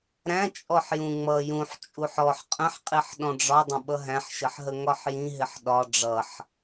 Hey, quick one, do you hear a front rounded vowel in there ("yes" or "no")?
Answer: no